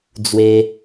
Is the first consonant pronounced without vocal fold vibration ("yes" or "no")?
no